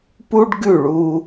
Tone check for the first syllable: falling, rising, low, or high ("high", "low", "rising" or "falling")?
high